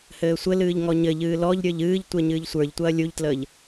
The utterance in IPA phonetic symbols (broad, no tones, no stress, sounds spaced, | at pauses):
h ɘː sʷ ɘ l ɨː ʎ ŋ ɔ ɲ ɘ ʎ ɨː l ɔ ʎ ɾʲ ə˞ ʎ ɨː ʎ tʷ e ɲ ɨː ʎ sʷ ə˞ ʎ tʷ ɐː lʲ u ʎ t l əː ʎ